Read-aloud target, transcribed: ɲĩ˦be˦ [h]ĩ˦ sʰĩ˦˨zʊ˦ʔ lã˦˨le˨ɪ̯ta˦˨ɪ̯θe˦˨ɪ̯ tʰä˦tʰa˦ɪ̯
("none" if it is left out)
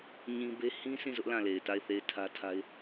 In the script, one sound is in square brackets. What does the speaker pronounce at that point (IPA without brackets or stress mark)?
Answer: h